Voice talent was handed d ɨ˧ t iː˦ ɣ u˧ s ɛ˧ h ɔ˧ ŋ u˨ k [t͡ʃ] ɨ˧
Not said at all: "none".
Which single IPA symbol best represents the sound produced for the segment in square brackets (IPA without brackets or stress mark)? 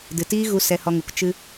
t͡ʃ